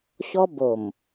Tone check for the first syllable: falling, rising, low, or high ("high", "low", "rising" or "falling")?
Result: high